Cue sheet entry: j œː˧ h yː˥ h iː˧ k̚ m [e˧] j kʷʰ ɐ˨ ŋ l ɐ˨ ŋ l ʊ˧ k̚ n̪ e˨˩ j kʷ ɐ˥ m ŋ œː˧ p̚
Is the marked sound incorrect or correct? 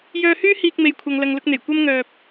incorrect